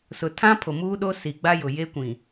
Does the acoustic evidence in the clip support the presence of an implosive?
yes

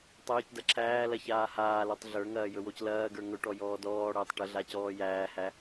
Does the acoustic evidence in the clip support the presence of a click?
yes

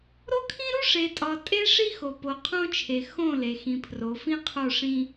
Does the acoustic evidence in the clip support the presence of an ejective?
yes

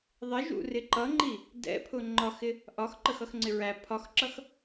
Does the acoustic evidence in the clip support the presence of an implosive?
no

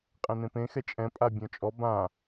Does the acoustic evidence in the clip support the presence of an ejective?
yes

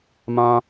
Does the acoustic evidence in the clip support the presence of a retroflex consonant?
no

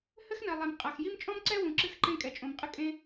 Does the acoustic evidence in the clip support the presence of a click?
yes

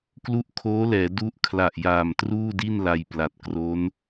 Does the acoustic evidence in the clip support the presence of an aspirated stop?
yes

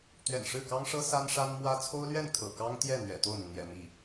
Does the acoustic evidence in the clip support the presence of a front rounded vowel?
no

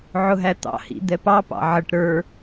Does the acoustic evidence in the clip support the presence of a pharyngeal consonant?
yes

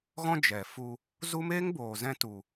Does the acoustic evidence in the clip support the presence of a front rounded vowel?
no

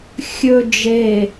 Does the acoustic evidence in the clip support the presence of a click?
no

